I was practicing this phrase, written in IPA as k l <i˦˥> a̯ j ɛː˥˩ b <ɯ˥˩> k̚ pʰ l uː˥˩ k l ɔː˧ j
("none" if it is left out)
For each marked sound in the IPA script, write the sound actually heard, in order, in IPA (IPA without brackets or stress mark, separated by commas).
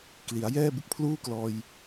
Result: i˩˦, ɯ˦˥